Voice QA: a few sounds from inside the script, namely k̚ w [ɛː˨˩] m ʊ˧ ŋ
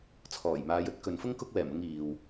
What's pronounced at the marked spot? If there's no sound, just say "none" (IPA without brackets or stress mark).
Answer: ɛː˨˩